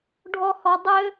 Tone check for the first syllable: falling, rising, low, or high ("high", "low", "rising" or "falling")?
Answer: high